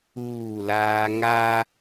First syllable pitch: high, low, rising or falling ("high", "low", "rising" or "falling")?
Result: falling